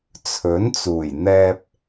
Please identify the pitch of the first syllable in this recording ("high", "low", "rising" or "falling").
rising